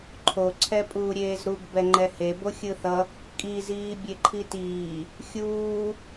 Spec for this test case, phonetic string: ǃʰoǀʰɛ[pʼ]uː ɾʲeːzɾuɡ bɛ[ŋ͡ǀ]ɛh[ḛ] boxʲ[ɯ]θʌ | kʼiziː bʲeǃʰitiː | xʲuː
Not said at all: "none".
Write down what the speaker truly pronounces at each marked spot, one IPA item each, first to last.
pʼ, ŋ͡ǃ, e, ɯ

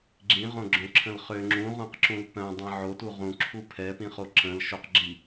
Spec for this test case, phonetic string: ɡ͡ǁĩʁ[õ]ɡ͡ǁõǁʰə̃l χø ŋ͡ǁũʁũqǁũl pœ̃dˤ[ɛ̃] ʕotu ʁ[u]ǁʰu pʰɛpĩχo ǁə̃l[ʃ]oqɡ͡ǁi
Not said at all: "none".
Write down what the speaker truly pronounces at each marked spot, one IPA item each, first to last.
õ, ɛ̃, ũ, ʃ

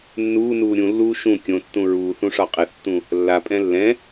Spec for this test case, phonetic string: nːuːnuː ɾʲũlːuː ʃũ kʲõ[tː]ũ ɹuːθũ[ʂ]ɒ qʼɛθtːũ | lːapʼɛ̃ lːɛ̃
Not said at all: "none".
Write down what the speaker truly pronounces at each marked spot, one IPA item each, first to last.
tː, ʂ

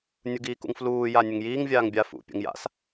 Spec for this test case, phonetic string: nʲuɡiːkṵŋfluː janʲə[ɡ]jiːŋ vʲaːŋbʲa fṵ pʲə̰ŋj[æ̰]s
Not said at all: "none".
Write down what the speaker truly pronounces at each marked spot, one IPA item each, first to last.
ŋ, a̰

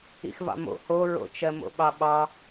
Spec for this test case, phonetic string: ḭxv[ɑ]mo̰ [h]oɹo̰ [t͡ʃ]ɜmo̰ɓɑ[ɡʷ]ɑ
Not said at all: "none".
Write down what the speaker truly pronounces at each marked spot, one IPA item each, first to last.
ɑ̰, h, t͡ʃ, ɓ

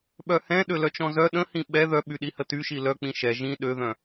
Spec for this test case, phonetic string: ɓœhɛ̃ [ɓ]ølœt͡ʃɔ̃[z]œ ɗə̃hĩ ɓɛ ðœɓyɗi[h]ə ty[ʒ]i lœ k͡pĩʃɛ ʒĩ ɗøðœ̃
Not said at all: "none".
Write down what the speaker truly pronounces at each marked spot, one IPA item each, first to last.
ɗ, z, h, ʃ

